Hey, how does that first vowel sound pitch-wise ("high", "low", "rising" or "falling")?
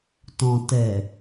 low